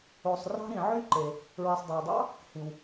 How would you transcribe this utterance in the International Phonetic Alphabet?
o˩ sˤ r ɑ̤˥ ɾ ĩ˩ ʕ y˥ ǃ e˩ | ɹ i˩ sˤ dˤ e˩ w dˤ ɑ̰˥ | h ĩ˩ w

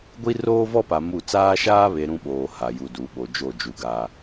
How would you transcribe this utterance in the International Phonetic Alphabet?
ɡʷ i˦ r oː˦ v ɔ˦ p a˨ m u˦˨ t͡s aː˦ ʃ aː˦ β e˨ ɾ ũ˦ ɓ oː˨ h a˨ j u˨ d u˨˦ ɓ o˨ d͡ʒ o˦˨ d͡ʒ u˨ ɡ a˦

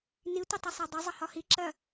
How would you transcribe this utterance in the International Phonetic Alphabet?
n i tʷ ʌ tˤ ʌ sˤ æ dˤ ʌ zˤ ə h ɒ h i ǁ ɜ

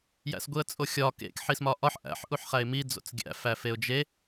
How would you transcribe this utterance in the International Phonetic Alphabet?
j æ̰ s ɡʷ i ə̯ t͡sʼ o xʲ ɒ k ḛ k ħ i s m ɒ ʔ ɒ ħ ʔ æ̰ ħ ʔ u ħ χ æ ɪ̯ m i d͡z o̰ t͡s ɡʲ æ̰ f æ f e ʊ̯ d͡ʒ e

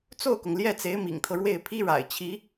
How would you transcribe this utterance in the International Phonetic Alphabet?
t͡s o˥˩ ʊ̯ k ʊ˩ ŋ l j ɛ˥˩ t͡s e˧˥ ɪ̯ m ḭ˨˩ ŋ t̪ʰ ɤ˦ ɻ w e˥˩ ɪ̯ pʰ i˥ ɻ a̰˨˩ ɪ̯ t͡ɕʰ i˧˥

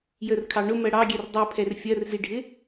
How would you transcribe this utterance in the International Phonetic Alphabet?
j ə r kʰ ɑ ɳ ʊ m ɜ ɽ ɑ ɡʲ ɛ r dˤ i pʰ ɛ r fʲ ɜ r z i ɖʱ ɪ

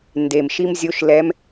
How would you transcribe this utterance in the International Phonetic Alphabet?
n d e˨˩ m ʃ i˥ m zʲ o˧˥ ʃ l ɛ˧˥ m

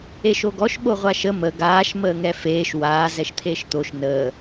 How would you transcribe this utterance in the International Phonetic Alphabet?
e ʃ o ɡ ɔ ʃ ɓ o ʁʷ a ʃ ə m ə ɡ aː ʃ m əː ŋ ɛ f eː ʃ w aː z ɛ ʃ t̪ʰ eː ʃ t̪ o ʃ n əː

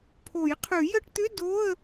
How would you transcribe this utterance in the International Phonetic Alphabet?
pʰ o˨˩˦ j qʰ ʉ˨˩˦ j ə˧˥˧ ʈ t̪ ʏ˧˥˧ d o˧˥˧ ə̯

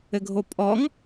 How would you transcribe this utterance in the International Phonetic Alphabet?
ɘ ɡʱ o pʼ ɔ ŋ

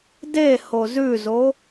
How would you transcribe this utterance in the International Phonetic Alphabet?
d e h o z ʉ z o

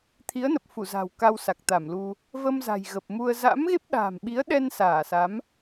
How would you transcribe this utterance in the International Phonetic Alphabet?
t̪ʰ i˨˦ ə̯ n ə˨˩ p̚ f u˧˩ z a̤˨˩ w k a˧ w s a˨˩ k̚ t̪ a˧˩ m l u˧ | v ə˧ m z a̤˨˩ j ɣ ə˨˩ p̚ m u˧ ə̯ z a̰˧˥ m ɣ e˦˥ p̚ ɗ a̤ː˨˩ m ɓ i˨˦ ə̯ ɗ ɛ˧ n s aː˧˩ s a˨˦ m

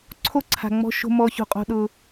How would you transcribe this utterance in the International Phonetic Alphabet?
ǀʰ o˦ ǀʰ a̤˨ ŋ͡m ɔ̤˦ ʃ o̤˦ m ɔ˦ ç o̤˦ qʼ o̤˦ ɗ ʊ˦

